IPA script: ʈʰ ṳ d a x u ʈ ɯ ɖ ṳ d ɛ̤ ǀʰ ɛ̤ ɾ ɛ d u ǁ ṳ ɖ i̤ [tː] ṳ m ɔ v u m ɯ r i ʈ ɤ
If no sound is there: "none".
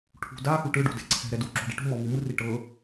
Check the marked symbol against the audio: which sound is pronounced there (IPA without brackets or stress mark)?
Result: ʈ